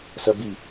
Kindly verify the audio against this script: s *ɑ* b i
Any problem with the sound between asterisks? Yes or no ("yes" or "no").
yes